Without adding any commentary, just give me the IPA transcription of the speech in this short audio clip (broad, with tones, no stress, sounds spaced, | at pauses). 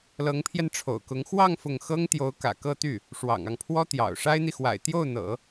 l ɤ˧˥ ŋ pʰ j ɛ˧ n ʈ͡ʂʰ o̰˨˩ ʊ̯ k ʊ˧˥ ŋ x w ɑ˥˧ ŋ f ʊ˥˩ ŋ x ɤ˥ ŋ t̪ j o˧˥ ʊ̯ k ä̰˨˩ k ɤ˥˧ t̪ y˥˩ | ʂ w ɑ̰˨˩ ŋ ɑ˦ ŋ pʰ w ɔ˥ t̪ j ɑ̰˨˩ ʊ̯ ʂ a˥ ɪ̯ n̪ i˨ x w a̰˨˩ ɪ̯ t̪ j o˥˩ ʊ̯ n̪ ɤ̰˨˩˦